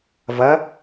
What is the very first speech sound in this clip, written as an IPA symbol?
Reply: v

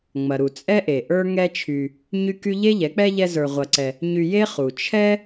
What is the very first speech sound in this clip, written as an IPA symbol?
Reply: ŋ͡m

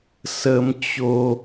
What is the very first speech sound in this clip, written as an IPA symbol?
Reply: s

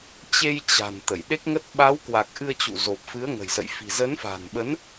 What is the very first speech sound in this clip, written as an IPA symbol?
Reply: t͡ɕ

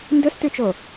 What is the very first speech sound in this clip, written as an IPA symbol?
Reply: n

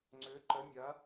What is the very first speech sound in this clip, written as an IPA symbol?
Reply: ŋ͡ǀ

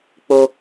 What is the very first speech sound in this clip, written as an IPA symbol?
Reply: k͡p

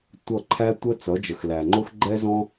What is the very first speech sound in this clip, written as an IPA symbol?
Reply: tʷ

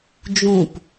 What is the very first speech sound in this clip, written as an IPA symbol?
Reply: d͡ʒ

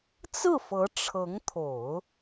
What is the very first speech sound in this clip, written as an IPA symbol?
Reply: t͡s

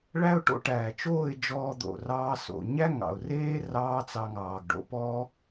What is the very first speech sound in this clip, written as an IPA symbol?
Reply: ɭ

